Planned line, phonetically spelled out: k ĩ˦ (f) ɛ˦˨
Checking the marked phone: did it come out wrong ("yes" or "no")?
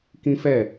no